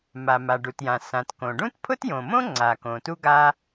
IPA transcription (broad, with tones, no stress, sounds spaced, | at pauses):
m a˩ m a˩ ɖ u˩ t j ã˩ s ã˩ t k õ˩ ɖ ũ˥ t pʰ ʊ˥ t j õ˩ m õ˥ ŋ͡ǀ a˩ k õ˩ t u˥ ɡ a˥